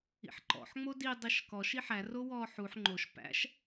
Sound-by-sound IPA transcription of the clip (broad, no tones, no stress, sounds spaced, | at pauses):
ḭ ħ ǃ ɔ̰ ħ ŋ͡m o d i dˤ i ʃ k ɔ ʃ i ħ æ r o w ɔː ħ u ħ ŋ͡ǃ o ʃ p æ̰ ʃ